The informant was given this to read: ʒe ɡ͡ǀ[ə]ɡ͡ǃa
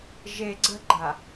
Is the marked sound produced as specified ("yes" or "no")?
yes